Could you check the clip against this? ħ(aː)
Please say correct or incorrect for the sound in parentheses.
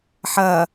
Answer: incorrect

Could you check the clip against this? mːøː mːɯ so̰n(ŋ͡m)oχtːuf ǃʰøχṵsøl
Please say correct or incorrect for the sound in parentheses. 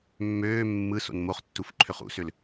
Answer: incorrect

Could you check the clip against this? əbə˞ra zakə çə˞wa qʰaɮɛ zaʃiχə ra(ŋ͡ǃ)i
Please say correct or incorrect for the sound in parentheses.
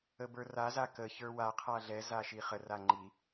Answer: correct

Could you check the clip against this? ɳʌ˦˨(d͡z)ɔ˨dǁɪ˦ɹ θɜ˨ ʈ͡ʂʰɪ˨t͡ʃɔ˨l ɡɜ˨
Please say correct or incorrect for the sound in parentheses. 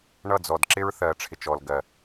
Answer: correct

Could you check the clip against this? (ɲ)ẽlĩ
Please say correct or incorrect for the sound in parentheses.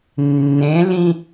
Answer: incorrect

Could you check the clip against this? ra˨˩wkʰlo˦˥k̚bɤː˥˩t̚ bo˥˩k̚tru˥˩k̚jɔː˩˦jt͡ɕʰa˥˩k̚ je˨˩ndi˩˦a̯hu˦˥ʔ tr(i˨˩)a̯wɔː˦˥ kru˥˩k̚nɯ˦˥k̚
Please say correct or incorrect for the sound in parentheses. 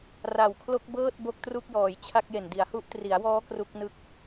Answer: incorrect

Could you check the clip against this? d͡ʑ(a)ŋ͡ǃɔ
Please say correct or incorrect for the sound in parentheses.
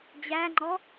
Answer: incorrect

